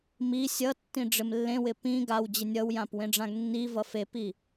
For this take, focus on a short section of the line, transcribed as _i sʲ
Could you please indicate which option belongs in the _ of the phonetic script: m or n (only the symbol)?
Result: m